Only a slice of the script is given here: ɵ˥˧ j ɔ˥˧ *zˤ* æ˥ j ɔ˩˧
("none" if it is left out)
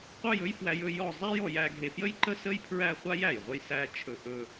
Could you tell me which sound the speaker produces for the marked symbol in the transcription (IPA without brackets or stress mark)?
zˤ